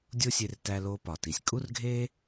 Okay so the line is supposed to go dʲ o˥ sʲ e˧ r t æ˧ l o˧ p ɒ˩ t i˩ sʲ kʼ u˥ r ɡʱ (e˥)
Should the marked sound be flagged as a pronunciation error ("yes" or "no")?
no